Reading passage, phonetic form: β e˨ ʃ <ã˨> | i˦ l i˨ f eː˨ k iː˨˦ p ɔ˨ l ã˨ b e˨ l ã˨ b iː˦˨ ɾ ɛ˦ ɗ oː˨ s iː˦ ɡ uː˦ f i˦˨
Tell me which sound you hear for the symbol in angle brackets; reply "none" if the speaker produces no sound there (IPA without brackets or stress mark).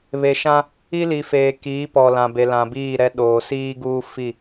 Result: ã˦